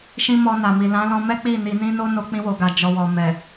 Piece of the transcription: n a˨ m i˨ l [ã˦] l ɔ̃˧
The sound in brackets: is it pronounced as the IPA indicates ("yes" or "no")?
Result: no